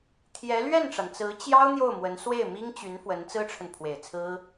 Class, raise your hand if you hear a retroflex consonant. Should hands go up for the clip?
yes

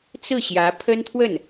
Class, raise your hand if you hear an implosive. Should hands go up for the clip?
no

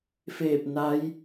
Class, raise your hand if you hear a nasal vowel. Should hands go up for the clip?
no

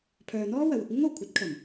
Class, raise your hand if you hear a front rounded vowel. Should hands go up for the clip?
yes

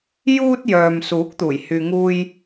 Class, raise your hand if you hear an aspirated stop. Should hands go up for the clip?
no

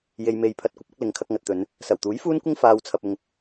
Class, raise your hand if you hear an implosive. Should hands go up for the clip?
no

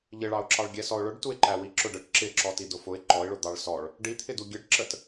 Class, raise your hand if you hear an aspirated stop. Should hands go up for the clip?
yes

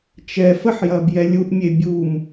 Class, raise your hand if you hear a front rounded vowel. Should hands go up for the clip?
no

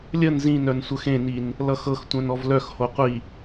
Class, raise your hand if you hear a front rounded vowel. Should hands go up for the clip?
yes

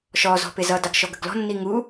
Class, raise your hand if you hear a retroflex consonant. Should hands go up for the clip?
no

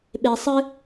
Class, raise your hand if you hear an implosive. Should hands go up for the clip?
yes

